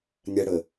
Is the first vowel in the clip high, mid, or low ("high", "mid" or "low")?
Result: low